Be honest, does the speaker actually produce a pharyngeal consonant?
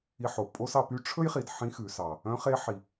yes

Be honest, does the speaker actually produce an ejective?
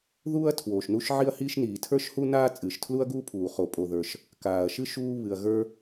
yes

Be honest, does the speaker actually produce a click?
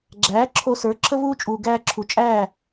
yes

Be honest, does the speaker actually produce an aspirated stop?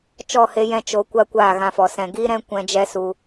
no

